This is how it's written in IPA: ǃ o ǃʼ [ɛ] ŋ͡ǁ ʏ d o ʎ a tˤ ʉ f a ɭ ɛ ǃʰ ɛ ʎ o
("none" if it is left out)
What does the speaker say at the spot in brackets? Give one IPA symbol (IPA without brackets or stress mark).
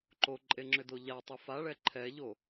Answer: e